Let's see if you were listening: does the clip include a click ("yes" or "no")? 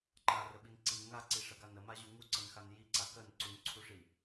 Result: yes